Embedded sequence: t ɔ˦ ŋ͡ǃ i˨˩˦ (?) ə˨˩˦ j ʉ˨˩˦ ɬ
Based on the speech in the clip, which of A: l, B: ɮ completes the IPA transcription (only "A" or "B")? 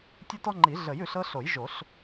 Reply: B